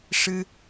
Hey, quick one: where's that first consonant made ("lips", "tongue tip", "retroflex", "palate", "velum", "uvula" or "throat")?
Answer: retroflex